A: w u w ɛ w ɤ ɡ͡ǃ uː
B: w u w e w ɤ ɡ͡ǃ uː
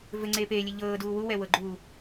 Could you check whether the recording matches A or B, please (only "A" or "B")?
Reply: A